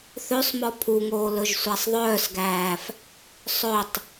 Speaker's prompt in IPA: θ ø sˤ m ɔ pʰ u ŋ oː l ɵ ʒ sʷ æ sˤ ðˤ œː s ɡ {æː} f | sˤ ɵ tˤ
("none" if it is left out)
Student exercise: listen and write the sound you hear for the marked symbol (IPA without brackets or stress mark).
æː